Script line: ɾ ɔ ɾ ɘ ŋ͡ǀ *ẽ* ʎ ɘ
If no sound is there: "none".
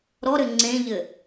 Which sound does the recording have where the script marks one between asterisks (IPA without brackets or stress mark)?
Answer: ẽ